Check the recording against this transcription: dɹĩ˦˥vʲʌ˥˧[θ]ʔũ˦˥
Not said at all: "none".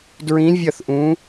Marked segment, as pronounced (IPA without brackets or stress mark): θ